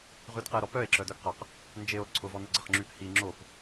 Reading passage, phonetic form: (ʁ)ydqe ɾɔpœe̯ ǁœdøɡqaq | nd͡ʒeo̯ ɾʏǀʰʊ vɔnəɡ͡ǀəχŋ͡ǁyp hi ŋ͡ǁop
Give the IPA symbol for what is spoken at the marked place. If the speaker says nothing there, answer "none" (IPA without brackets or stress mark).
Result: ʁ